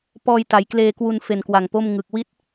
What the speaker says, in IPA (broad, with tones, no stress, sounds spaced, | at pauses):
p ɔː˧ j t a˩˦ j k l eː˧ k w u˧ n f e˨˩ n k w a˨˩ ŋ p o˥˩ m ŋ ɯ˨˩ k̚ w i˥˩ t̚